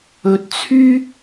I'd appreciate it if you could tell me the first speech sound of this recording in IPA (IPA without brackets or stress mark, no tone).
ɵ